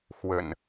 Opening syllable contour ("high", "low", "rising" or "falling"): low